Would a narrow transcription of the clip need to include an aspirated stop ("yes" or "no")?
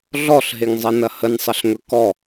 no